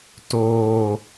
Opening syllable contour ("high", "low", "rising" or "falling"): low